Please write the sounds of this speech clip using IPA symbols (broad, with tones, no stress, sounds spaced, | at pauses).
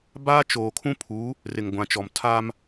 b aː˦ t͡ʃ oː˨ kʰ ũ˦ pʰ uː˨˦ | r ɪ˨ ŋ ɡʷ ã˨ t͡ʃ ɔ˨ m tʰ aː˦ m